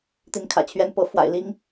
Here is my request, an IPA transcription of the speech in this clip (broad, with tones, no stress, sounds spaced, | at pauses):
t̪ i˧˥ n kʰ ä̰˨˩ t͡ɕʰ ɥ ɛ˥˩ n p ɤ˧˥ f w a̰˨˩ ɪ̯ l i˥ ŋ